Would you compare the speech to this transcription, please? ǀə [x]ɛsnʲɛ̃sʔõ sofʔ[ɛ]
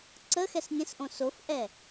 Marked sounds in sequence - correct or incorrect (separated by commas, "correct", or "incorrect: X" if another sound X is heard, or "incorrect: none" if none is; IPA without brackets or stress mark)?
correct, correct